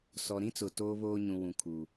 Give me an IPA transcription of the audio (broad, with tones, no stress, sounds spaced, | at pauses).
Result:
s ɔ˨ ɾ ĩ˦ t͡s ʊ˨ t oː˦ β oː˦ ɲ ũ˨ w ũ˨ kʰ u˨